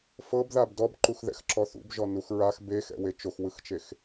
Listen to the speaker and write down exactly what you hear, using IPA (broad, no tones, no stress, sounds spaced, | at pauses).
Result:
f ɤ b ð a b d ɔ b ǃ u x ð ɛ̰ x ǁ ɔ θ ṵ b ʒ ɔ n u x ɹ a x b e x ɛ̰ w e t͡ʃ o x w ɯ x t͡ʃ e x